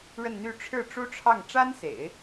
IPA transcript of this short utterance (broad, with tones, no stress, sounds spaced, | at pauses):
ɻ ə˥˧ n n̪ y˥˧ ʈ͡ʂʰ ɻ̩˥˩ ʈ͡ʂ u˥ ʈ͡ʂʰ ɑ˥˩ ŋ ʈ͡ʂ a˥ n s ḛ˨˩˦ ɪ̯